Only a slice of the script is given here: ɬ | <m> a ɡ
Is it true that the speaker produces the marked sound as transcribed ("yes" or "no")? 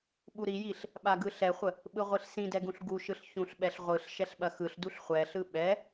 no